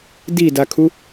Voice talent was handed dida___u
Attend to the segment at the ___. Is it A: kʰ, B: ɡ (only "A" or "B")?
A